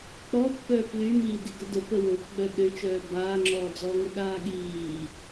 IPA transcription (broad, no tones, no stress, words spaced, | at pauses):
k͡pɔpːœː plymiːd iɡədə pəwopɡ͡bœ ɗøt͡ʃœː baːŋ͡ǁɔːd͡zɔːŋə ɗaːɠiː